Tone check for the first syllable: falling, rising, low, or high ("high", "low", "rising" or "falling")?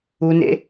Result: high